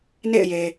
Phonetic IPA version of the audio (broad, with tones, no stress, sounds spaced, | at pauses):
n ḛ˦˨ ɪ̯ j e˨